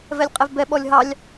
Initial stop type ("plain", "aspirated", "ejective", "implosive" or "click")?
ejective